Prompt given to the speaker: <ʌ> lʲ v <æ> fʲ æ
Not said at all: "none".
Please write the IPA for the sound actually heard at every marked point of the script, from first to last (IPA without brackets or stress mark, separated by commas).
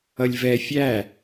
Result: ʌ, ɛ